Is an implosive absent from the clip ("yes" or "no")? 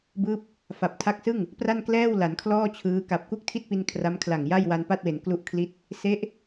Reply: yes